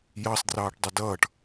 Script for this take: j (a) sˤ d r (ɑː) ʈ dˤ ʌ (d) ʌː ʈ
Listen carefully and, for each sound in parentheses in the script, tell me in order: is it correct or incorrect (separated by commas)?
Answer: incorrect, correct, correct